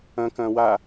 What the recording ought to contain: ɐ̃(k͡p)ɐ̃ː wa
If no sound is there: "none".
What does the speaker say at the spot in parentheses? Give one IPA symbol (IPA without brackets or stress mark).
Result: k